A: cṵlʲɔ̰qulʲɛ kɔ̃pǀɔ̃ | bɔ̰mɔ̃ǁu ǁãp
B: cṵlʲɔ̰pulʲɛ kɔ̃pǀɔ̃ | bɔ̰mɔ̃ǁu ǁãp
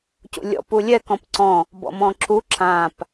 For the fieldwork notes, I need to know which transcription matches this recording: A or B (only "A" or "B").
B